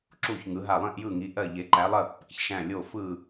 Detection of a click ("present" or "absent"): present